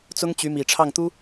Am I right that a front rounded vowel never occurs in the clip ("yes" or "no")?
no